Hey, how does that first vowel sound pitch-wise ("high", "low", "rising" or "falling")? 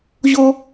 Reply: high